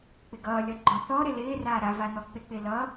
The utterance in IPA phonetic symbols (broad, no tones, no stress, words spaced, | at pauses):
k͡pɪɡʌːlʲʌ ɡ͡ǃɔ̃θɔɾɪ lɪːraː ɾa vanɔk͡pɪk͡pɪ lʌ